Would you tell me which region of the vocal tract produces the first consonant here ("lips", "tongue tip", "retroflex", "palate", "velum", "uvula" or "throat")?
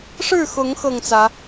retroflex